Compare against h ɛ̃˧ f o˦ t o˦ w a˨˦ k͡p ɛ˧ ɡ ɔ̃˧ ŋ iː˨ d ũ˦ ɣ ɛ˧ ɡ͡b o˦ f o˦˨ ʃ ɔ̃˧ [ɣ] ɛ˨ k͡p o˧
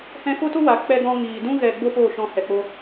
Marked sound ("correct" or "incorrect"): incorrect